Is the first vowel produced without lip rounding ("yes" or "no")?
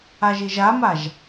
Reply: yes